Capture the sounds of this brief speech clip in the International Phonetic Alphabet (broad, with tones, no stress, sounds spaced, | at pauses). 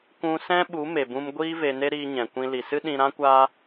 kʷ ũ˧ s ɛ̃˦ ɓ u˨˦ m e˨ b ũ˧ m ɡʷ iː˦ v e˧ n e˦ ɾ iː˧ ɲ ɛ̃˨ kʷ ĩ˧ l i˨ s ɨ˦ ɗ ĩ˧ ɾ ã˦ kʷ aː˦